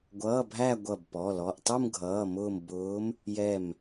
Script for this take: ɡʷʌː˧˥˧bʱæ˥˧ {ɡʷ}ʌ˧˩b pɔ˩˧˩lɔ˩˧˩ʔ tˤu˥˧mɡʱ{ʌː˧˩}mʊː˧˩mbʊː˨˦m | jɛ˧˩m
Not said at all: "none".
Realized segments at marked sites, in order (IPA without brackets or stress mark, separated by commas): ɡʷ, ʌː˩˧˩